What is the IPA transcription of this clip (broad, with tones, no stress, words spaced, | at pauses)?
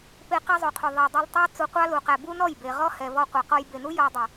pe˧ qɛ˦zˤu˨qʰu˨ ðˤɛ˨dˤɛ˧ltˤɑ˦ t͡su˧qʷɑ˦ lu˨qæ˨ bu˦nɔ˦˨jbe˨ ʁɔ˦hɛ˨ vɔ˧qʷɑ˨qɔ˧j be˨nu˦ jɔ˧dˤe˨